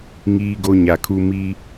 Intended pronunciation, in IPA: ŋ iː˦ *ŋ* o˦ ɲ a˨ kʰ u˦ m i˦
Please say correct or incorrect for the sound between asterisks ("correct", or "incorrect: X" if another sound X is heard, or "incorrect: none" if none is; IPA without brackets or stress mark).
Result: incorrect: ɡ